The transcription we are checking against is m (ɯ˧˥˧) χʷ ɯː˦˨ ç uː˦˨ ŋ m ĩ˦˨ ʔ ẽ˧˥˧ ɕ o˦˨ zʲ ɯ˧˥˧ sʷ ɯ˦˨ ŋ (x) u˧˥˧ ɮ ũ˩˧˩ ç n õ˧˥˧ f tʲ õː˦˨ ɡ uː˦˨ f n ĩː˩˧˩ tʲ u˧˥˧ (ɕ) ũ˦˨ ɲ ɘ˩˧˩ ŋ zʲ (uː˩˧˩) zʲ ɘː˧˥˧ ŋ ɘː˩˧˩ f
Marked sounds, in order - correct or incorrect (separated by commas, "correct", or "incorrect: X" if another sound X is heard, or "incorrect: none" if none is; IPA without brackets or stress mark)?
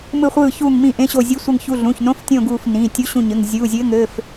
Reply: incorrect: ɯ˦˨, incorrect: ç, correct, correct